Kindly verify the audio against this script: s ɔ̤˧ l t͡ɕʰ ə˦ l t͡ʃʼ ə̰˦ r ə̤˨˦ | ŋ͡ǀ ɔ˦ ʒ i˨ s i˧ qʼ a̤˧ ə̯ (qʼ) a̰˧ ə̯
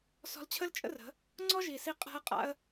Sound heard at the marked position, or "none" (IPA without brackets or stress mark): qʼ